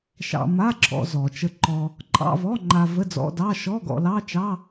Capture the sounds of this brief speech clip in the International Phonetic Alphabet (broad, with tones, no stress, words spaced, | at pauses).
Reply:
ʃɑ̰˧ma˧˥˧ǁʰɔ̰˧ zɔ˩t͡ʃə˧ǃɔ˧ | ǃʼɑ̰˧˥˧vɔ˧˥˧ŋ͡ǃa˧ və˧˥˧d͡zɔ̰˧˥˧dɑ˧˥˧ ʃɔ˧˥˧ɡɔ̰˧lɑ˧˥˧t͡ʃɑ˧˥˧